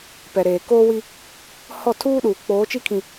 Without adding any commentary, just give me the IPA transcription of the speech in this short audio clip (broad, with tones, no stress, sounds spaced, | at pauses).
p ɛ˨ ɾ eː˨ k oː˦ w i˦ | h ɔ˦˨ tʰ uː˦ ɗ uː˨ k͡p oː˨˦ t͡ʃ i˦ kʰ ĩ˨